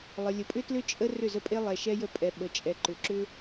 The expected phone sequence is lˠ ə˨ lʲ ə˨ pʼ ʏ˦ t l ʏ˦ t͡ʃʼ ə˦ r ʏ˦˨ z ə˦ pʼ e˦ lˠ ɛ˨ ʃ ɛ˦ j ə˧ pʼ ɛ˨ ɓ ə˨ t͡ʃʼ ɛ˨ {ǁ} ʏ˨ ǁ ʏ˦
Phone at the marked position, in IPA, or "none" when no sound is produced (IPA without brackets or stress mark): ǃ